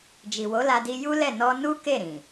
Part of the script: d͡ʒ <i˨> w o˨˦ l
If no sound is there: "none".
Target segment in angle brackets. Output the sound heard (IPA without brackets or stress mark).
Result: i˨